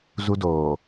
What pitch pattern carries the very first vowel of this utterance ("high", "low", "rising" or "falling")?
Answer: high